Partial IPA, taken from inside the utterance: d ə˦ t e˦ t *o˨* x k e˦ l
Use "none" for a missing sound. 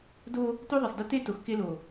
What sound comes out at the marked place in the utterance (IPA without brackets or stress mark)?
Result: o˨